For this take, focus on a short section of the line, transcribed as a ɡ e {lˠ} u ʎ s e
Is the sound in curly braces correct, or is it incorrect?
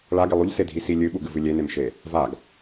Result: correct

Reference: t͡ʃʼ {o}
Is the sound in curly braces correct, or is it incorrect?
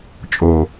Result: correct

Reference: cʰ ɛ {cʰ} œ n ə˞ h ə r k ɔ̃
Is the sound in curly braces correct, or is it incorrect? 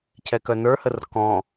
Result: incorrect: k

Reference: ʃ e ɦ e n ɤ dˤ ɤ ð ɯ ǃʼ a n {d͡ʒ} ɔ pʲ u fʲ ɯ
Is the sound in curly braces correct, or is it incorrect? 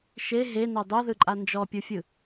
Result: correct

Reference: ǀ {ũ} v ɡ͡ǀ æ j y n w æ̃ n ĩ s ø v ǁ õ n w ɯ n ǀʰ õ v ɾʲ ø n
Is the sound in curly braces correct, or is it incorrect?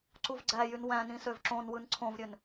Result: incorrect: u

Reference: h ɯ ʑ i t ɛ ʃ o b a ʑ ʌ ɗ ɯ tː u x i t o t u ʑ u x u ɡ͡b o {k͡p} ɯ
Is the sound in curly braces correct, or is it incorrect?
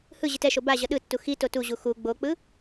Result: correct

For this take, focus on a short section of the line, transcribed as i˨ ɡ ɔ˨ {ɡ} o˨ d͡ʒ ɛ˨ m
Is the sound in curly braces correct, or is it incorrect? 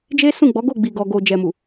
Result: correct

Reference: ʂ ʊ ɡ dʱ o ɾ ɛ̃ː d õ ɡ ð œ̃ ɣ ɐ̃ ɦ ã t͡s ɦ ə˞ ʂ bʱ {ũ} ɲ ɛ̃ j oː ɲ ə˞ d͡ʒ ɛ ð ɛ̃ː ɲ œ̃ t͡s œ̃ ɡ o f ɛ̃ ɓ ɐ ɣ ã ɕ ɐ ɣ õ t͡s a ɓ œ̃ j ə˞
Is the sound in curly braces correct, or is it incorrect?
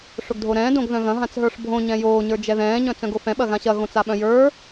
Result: incorrect: õ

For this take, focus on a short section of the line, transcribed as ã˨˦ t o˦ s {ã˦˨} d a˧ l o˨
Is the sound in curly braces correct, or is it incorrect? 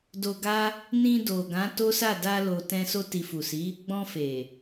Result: incorrect: a˦˨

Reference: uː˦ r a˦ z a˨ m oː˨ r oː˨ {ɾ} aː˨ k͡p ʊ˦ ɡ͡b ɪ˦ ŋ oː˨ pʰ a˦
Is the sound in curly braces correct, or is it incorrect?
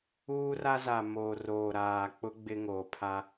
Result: correct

